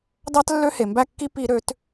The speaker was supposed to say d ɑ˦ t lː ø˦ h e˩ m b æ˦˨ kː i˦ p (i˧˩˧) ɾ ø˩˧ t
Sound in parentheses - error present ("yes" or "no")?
no